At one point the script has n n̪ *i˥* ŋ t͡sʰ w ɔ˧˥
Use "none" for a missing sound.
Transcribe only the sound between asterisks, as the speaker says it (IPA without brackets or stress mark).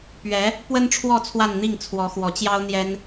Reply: i˥˩